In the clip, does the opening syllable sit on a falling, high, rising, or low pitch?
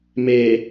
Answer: low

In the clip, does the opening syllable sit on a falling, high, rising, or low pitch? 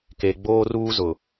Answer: low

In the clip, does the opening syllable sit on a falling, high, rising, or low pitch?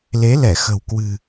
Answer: rising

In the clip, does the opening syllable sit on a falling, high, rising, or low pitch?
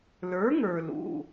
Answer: rising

